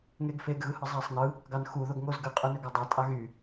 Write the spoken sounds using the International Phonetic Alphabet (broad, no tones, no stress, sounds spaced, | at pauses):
ŋ e ɡ f e ɡ ɣ ɯ h ɯ zˤ æ sˤ n ɯ | ɡ ɑ n x u ð o ɡ ŋ o z ɡ ɯ qʼ y n ø ɡ ɑ dˤ æ tʼ ɑ ɣ y